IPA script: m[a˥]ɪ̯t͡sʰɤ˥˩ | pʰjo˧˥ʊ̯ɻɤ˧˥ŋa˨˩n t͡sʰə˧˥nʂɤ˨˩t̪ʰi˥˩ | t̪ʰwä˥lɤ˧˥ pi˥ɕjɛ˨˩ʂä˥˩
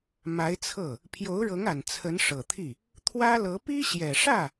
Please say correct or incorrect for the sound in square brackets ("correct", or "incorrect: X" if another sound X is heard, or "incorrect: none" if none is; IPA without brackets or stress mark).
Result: incorrect: a˧˥